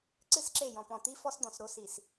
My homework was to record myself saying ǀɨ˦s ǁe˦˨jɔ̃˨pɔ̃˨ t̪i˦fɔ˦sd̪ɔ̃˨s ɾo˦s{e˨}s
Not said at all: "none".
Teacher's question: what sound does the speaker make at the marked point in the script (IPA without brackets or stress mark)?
i˨